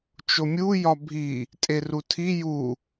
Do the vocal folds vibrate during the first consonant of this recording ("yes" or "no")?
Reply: no